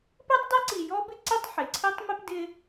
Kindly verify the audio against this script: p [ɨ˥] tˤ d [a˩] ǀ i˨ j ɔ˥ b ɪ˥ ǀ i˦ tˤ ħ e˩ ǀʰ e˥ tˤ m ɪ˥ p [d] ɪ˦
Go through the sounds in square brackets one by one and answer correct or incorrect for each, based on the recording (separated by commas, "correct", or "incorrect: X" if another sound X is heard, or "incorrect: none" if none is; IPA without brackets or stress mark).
incorrect: e˥, incorrect: a˥, correct